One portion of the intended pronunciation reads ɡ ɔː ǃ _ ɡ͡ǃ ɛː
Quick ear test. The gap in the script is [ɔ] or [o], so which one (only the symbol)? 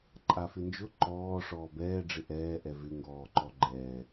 ɔ